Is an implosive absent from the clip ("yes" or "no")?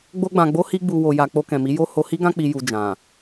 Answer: yes